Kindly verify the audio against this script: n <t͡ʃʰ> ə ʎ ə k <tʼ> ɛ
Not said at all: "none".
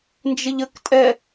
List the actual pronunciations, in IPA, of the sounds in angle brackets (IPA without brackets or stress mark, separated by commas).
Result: d͡ʒ, tʼ